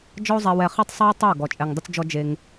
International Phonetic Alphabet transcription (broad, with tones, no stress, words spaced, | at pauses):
d͡ʒɔ˦o̯zˤɛ˧wɛ˧ χi˦˨tˤsˤɛ˦w tˤe˦˨o̯ ɡɔ˨t͡ʃʼɛ˨ŋdˤɵ˧t͡sd͡ʒɔ˧ d͡ʒe˧ŋ